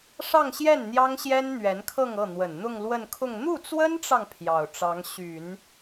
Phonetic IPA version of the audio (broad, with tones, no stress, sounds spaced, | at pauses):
ʂ ɑ˥˧ ŋ ɕ j ɛ˥˩ n n̪ j ɑ˥ ŋ ɕ j ɛ˥ n n̪ ɥ ɛ˧˥ n kʰ ɤ˥˧ ŋ ɤ˥˩ n̪ w ə˨˩ n n̪ ʊ˥˧ ŋ l w ə˥˧ n kʰ ʊ˥˧ ŋ n̪ u˥˩ t͡s w ə˥ n ʈ͡ʂ ɑ˨ ŋ pʰ j ɑ˨˩ ʊ̯ ʈ͡ʂ ɑ˧˥ ŋ ɕ y˨˩˦ n